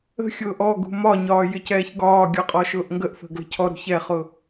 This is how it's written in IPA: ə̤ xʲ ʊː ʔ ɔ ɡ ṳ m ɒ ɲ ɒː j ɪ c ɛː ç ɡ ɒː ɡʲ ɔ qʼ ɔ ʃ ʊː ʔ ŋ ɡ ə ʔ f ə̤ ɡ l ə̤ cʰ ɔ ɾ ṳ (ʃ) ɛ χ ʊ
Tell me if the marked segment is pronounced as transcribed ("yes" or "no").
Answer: no